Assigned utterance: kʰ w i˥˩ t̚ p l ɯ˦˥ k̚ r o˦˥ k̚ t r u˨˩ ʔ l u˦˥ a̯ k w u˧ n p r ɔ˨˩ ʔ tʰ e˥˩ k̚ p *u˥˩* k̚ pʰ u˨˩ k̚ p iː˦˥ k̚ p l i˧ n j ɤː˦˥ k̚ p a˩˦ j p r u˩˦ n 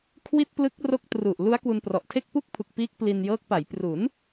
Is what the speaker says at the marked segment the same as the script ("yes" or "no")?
yes